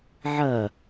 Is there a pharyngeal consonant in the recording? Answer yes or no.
yes